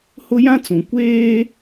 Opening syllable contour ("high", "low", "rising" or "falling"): high